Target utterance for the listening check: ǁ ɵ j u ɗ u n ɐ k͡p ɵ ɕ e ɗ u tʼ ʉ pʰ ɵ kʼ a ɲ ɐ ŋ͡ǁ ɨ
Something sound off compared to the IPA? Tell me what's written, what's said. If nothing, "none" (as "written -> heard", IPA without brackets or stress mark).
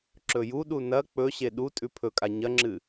none